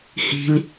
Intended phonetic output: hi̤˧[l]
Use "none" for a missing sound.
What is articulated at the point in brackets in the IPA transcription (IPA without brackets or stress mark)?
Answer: l